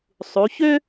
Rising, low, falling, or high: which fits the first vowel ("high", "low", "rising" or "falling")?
rising